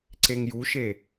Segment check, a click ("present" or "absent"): present